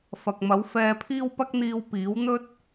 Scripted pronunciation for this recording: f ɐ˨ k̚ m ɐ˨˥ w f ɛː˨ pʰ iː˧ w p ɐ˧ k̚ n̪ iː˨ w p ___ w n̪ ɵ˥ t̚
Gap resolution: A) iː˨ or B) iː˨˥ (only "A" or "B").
B